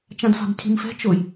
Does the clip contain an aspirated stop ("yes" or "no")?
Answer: yes